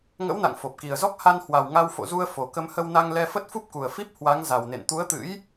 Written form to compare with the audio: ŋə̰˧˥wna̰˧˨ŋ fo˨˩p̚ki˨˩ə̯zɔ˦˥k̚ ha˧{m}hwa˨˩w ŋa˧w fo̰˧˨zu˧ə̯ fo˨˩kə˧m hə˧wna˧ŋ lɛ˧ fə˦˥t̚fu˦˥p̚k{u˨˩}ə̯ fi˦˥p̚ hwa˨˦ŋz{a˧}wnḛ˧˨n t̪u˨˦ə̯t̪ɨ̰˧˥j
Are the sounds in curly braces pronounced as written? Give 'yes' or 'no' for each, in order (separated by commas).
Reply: no, yes, no